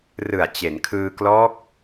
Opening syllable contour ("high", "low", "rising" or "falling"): low